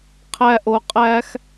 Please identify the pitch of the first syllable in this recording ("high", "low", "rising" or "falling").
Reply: high